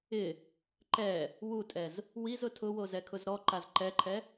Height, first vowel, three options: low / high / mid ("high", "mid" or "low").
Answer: high